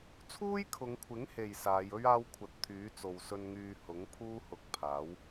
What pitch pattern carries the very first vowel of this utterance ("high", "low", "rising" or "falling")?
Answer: high